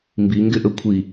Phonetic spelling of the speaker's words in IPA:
m b i ŋ ɡ ɪ ʔ ə kʷʰ i

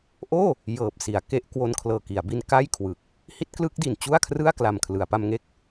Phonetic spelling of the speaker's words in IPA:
ʔ oː˥˩ | j ɤː˨˩ p̚ s i˩˦ a̯ k e˦˥ ʔ k w o˧ n kʰ l ɤː˨˩ k i˩˦ a̯ b i˧ n k a˥˩ j kʰ w ɯ˨˩ k̚ | h i˦˥ t̚ k l ɯ˦˥ k̚ d i˨˩ n t͡ɕ u˥˩ a̯ kʰ r ɯ˥˩ a̯ k l a˨˩ m kʰ l ɯ˩˦ a̯ p a˧ m ŋ e˥˩ k̚

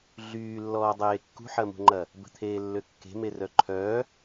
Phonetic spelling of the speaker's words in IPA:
ɮ yː lː ɔː dˤ eː kː ṳ ħ ɐ m ṳ ŋ͡ǃ ɐ | b ə̤ t̪ʰ eː lː ø kː e̤ m e r œ ǃʰ œː

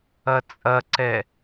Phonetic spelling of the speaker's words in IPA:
ɐ t͡sʼ ɐ ǀ ɛ

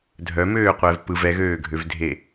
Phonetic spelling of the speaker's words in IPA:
dʱ œ m øː qʷ ɛː v p ɯ v ɛ ɣ øː ɡʱ ø v dʱ e

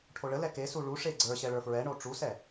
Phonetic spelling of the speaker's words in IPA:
ʈʰ o ɭ ə l ɛ k e s u ɭ u ʂ e ɡ͡ǀ ə˞ ɕ ɛ ɭ ə˞ f ɹ ɛ ɳ o ʈ͡ʂ u s ɛ

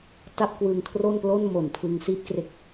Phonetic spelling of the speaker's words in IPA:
t a˥˩ p̚ k w ɯ˧ ŋ kʰ r o˥˩ n p l o˥˩ n m o˨˩ n pʰ ɯ˧ ŋ s iː˥˩ p̚ k r e˦˥ k̚

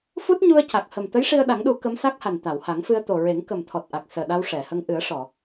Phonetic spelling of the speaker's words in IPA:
f u˦˥ t̚ ɲ u˧ ə̯ c a˨˩ k̚ h ə˨˩ m t̪ ə˧˥ j ʂ i˧ ə̯ ɗ a˨˩˦ ŋ ɗ u˨˩˦ k ə˧˥ m s a˦˥ k̚ h a˨˩ n t̪ a˨˩˨ w h a˨˩˦ ŋ f ɨ˧ ə̯ t̪ o˨˩ ɹ e˨˩˦ ŋ k ə˨˩ m t̪ʰ ɔ˨˩ t̚ ʔ a˨˩ k̚ s əː˨˩ ɗ a˧ w ʂ ɛ˨˩˨ h ə˧ ŋ ʔ ɨ˨˩˦ ə̯ ʂ ɔ˨˩˨

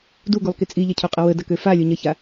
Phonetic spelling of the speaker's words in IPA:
d u ɡ u lˠ k i t͡sʼ i ʎ ɐ cʰ u qʼ ə w ə d ɐ k ø f a lʲ o ɲ ɐ ç a

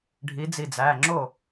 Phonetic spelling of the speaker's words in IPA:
ɖʱ i˨˦ d͡z i˧˩ d͡z æ˩˧˩ ŋ͡ǁ o˥˩

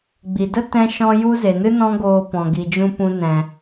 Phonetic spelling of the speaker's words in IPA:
ɡ͡b i˨ d ə˦ t ɛ̃˦ ʃ ɔ̃˦ j u˦ z e˨ n ɨ˦ n ɔ̃˦ ɡ oː˧ p ɔ̃˨ ɡ i˨ d͡ʒ ũ˧ p ũ˦ n ɛ̃˧

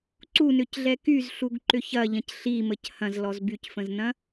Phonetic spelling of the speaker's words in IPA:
ǀ u n ʏ c ɮ ɛ k y z ɬ u ɡ ǃ ʏ ç ɐ ʎ ɐ̃ c ɬ i m ə c h ɐ̃ z l ɔ z b y c f ə̃ z n ɐ̃

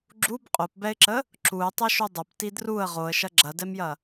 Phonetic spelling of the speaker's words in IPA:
ɡ͡ǁ u b qʼ o p b ɛ ɪ̯ ǁ ə | ǁ u ɪ̯ tˤ ɐ ʃ u dˤ ɐ p t i d r u ə̯ ʁ o ə̯ ʃ ɐ ɡ͡ǁ ɐ d ɛ m j ɐ

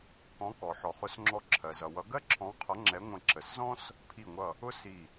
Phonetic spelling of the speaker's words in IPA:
k ɔ̃˨˦ k ɔ˩ ħ ɔ˩ χ ʊ˨˦ s ŋ͡ǁ ɔ˧˩ ǁʰ ɜ˩ z ʌ˩ w ʌ˨˦ ɡ ɜ˥ ǁʰ ɔ̃˨˦ w qʰ ʌ˨˦ ŋ͡ǁ ɛ˨˦ ŋʷ ə̃˧˩ ǁ ə˩ s z ɔ̃˥ s | pʰ i˧˩ ŋʷ ʌ˧˩ | ʊ˥ s i˧˩

